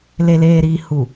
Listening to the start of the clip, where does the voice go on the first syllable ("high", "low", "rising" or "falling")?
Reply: low